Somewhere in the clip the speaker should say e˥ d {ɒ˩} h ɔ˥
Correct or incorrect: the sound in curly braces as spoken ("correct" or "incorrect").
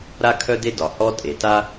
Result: correct